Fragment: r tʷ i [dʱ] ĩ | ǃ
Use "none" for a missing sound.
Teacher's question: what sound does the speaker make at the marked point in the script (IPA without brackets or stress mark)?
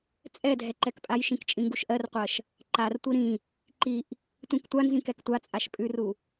ɾ